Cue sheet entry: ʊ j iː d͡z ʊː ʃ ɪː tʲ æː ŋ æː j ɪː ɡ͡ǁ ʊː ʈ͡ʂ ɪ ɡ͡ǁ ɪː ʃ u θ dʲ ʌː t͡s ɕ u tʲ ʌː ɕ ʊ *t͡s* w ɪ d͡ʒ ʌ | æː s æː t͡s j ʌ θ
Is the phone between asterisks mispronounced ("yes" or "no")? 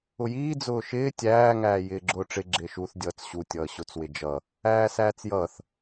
no